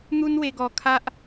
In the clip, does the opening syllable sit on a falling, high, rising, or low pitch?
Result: high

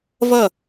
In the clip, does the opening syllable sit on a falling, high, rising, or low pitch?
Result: falling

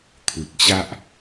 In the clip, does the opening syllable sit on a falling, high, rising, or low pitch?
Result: low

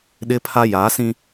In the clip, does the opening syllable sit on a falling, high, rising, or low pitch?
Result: high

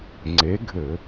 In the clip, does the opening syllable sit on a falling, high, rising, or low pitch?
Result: rising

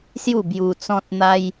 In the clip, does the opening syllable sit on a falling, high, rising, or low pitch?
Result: falling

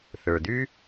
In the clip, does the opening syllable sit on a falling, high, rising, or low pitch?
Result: low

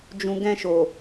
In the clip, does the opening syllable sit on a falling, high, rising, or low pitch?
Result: low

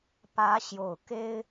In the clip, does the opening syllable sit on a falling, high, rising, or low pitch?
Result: rising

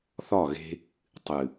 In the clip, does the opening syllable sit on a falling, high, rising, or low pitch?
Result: falling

